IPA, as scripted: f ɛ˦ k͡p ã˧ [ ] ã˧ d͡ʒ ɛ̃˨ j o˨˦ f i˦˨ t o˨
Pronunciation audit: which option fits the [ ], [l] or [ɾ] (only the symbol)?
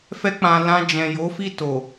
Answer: l